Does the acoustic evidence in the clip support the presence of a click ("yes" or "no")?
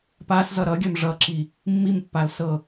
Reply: yes